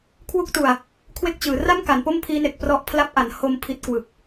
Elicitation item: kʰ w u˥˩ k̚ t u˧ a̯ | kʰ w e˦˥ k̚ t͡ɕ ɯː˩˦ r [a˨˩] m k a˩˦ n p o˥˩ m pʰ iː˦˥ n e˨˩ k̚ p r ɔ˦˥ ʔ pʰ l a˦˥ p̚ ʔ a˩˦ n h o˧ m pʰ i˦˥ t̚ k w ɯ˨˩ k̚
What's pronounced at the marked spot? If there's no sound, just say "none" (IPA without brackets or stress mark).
a˥˩